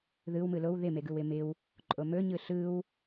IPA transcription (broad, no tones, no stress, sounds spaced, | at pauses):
ð ɯ w m ɯ l o w ð ɪ m e ɡ ɯ w ɪ m ɪ w | ǃʼ o m ɵ ɲ ɯ ɬ ɯ w